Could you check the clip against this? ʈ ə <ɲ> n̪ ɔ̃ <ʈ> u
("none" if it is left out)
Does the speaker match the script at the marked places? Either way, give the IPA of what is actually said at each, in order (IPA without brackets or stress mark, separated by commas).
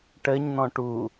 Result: ɲ, ʈ